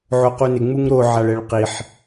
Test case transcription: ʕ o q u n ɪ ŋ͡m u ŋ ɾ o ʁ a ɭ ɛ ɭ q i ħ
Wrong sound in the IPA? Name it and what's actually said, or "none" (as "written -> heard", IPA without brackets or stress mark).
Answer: ʁ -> ʕ